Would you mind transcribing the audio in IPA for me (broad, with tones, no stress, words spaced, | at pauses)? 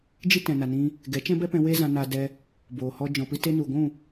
d͡ʒi˦tɛ̃˨na˨nĩ˧ | ɡɛ˨˦t͡ʃɛ̃˦bɛ˦pɛ̃˧ we˦zã˧na˧ dɛ˧ | boː˨hɔ˧ d͡ʒɔ̃˨pɨ˧ te˧nu˨ɡʷũ˦˨